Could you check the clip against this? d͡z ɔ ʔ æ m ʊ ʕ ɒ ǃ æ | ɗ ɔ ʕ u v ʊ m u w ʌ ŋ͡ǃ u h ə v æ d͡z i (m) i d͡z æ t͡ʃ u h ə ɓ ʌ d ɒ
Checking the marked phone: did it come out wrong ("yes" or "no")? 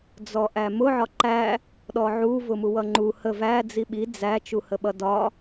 yes